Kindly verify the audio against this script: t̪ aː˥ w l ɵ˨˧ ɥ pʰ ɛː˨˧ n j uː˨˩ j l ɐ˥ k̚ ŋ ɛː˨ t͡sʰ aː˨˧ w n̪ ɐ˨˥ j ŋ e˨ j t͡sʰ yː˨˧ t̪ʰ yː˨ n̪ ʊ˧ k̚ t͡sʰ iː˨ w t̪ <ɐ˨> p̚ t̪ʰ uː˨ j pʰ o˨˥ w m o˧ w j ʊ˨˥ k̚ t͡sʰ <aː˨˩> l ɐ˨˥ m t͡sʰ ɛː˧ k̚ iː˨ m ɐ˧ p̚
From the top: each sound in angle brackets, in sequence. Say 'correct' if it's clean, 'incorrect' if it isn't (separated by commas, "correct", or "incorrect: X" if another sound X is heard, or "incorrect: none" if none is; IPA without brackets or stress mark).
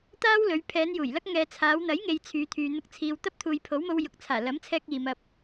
incorrect: ɐ˥, correct